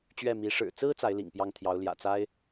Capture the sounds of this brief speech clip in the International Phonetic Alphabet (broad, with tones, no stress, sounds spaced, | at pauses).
t͡ɕ ɥ ɛ˥˩ m i˧˥ ʂ ɻ̩˨˩ t͡s ɹ̩˥ t͡s a˧˥ ɪ̯ l ḭ˨˩ ŋ p j ɑ˥˩ ŋ t̪ʰ j ɑ˧˥ ʊ̯ l j ä̰˨˩ t͡s a˥ ɪ̯